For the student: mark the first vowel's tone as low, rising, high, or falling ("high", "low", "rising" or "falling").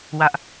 high